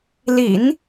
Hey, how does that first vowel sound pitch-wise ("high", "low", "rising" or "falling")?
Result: low